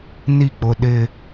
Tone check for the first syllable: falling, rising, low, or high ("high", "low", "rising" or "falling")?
falling